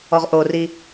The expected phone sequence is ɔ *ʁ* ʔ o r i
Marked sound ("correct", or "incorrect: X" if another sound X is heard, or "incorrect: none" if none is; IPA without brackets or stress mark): correct